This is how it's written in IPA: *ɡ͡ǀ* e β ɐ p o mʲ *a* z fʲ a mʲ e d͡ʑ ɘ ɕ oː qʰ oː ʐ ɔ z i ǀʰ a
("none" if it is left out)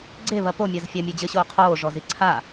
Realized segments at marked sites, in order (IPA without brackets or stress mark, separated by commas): ɡ͡ǀ, a